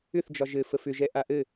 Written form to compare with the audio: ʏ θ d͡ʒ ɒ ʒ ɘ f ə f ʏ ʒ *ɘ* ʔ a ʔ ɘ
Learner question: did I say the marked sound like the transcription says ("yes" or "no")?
no